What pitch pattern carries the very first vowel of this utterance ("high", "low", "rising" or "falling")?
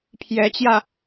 rising